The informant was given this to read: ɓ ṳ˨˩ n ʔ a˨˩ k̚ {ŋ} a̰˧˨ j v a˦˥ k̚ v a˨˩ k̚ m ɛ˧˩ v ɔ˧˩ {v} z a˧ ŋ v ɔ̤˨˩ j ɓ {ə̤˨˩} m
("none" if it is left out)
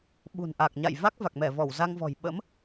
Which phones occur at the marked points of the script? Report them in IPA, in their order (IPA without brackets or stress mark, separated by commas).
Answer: ɲ, w, ə̰˧˥